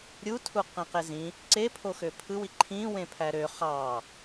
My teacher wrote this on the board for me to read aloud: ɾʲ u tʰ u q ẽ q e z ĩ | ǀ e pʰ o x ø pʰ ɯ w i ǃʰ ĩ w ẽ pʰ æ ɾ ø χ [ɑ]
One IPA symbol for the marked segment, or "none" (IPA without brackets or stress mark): ɑ